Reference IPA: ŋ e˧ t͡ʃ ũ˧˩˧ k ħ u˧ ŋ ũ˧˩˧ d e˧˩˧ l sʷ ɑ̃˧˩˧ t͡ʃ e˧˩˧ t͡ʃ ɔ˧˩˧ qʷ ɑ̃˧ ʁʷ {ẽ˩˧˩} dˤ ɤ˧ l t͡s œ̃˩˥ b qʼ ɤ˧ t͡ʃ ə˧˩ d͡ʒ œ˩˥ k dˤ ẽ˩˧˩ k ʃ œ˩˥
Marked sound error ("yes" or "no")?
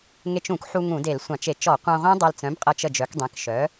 yes